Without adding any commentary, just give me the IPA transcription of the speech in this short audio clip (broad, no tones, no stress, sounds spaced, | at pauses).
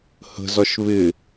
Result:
h ə̤ z ɒ ʃ β ɪ